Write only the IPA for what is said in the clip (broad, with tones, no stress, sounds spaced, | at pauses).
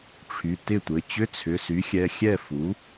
ʈ͡ʂʰ y˩˧˩ t ɪ˥˩ tʷ ɘ˩˧˩ t͡ɕ ʏ˧˥˧ t͡sʰ ʏ˩˧˩ s y˩˥ xʲ ɛ˩˧˩ xʲ ɛ˥˩ f u˩˥